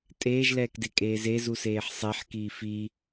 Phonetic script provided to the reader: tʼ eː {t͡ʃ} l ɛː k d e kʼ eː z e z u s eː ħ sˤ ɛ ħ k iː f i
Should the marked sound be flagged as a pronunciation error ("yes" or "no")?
yes